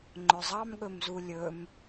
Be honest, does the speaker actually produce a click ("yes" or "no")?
yes